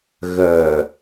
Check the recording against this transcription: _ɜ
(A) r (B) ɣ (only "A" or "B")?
B